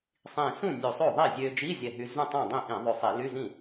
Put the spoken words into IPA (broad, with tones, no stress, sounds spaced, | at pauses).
sˤ ĩ˧˩ s ũ˥˩ nʲ u˧˩ sˤ o˥˩ ðˤ i˥˩ zʲ ø˧ d͡ʒ i˧˥˧ zʲ ɛ˧˩ ɦ y˧ z ũ˥˩ tˤ õ˥˩ dˤ ĩ˥˩ ʔ ĩ˧˩˧ ðˤ ø˧˩ sˤ i˧˩˧ l y˧˥˧ z ĩ˥˩